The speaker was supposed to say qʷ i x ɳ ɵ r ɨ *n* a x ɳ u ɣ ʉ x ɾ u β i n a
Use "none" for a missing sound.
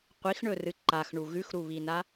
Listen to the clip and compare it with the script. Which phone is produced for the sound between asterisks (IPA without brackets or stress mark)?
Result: ǃ